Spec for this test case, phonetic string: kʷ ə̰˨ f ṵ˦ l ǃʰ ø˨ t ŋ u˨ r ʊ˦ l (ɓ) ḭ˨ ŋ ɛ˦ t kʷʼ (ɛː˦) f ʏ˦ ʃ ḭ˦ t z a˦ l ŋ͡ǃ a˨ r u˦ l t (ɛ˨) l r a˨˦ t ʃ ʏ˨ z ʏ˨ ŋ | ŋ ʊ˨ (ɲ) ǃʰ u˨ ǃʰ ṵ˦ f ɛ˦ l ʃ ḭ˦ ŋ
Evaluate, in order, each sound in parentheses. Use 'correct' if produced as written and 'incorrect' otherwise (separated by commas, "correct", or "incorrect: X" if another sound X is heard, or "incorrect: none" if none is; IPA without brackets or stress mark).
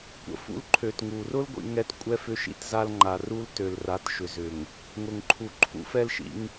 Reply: incorrect: ɡʷ, incorrect: ɛ˦, incorrect: ø˨, incorrect: ŋ